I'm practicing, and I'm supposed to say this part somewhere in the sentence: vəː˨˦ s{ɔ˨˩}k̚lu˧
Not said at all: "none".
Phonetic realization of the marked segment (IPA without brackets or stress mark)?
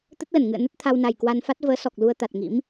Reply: ɔ˨˩